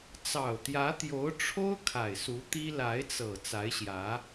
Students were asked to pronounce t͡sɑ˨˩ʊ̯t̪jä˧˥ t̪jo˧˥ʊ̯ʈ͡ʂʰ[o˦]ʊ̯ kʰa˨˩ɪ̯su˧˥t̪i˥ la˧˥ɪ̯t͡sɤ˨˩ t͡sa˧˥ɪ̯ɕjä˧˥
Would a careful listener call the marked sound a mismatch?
yes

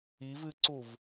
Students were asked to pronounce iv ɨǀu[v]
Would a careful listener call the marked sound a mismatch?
no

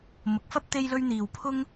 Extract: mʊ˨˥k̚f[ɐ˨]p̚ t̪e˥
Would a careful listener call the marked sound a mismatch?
yes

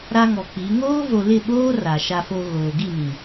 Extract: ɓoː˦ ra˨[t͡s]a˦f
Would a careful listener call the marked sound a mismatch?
yes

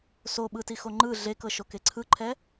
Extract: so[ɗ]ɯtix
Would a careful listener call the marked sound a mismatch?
yes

